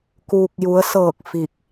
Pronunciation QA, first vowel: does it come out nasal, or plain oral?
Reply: oral